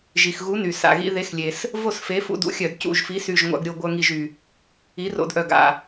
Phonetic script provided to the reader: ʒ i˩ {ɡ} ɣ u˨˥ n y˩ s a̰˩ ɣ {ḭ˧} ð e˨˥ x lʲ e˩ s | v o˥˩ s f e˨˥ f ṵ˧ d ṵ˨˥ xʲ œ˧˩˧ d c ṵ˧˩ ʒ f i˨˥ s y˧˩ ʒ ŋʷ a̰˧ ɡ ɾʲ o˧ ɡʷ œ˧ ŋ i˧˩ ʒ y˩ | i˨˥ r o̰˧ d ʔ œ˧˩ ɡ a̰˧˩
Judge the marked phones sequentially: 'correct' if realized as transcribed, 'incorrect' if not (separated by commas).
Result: incorrect, correct